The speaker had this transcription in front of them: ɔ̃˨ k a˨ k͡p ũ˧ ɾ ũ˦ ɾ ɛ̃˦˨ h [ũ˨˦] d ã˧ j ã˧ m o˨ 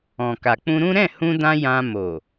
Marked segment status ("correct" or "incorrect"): incorrect